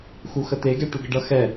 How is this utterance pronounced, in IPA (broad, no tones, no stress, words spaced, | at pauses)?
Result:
xuxət̪eɡɛ ʈuɡəɖʌ xɛ